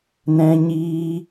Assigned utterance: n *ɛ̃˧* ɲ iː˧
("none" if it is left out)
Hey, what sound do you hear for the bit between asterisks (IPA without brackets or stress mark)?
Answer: ɛ̃˧